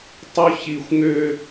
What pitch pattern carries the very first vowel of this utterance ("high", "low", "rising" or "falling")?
high